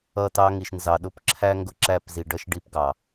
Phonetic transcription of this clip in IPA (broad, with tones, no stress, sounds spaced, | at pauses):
ʌ˦˨ t ɑ˦ ŋ i˨ ʃ n z ɑ˨ ɗ ʊ˦ p ǁʰ æ˦ ŋ ɡ ʊ˦ ǁ æ˦˨ p z i˨ ɖ ʌ˦ ʃ ɖ i˦ p ɡ ɑ˨